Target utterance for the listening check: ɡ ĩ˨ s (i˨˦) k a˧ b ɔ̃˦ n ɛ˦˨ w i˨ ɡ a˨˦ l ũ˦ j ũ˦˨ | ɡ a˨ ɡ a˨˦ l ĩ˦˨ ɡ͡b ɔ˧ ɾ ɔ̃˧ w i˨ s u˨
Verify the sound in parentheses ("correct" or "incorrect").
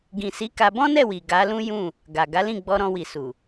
correct